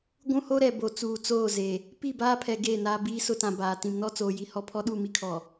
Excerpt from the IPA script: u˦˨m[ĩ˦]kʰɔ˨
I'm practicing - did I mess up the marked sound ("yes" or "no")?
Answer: yes